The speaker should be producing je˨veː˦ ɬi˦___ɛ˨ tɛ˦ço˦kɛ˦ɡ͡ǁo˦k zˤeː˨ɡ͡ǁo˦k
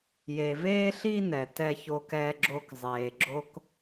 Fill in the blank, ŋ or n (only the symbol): n